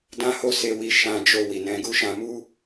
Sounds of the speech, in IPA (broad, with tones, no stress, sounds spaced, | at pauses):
d ã˦ h o˦ s e˧ w i˧ ʃ ã˧ d͡ʒ o˧ w i˨ n ɛ̃˧ ɡ u˦ ʃ ã˧ m u˦